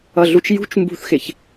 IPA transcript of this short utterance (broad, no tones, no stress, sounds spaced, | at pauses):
ʌ ɮ u t͡ʃ j ṳ t͡ʃ m b ṳ θ x ɪ ç